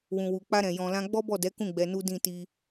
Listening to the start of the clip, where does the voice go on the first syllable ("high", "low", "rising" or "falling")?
low